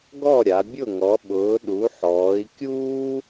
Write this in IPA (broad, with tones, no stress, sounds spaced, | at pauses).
ɡ ɔ˥˨ ɾʲ a˨˦ bʲ ʊ˥˨ ŋ ɔ˨˦ ɓ ʊː˨˦ ɗ u˨˦ ħ ɔː˨˦ i̯ kʲ uː˥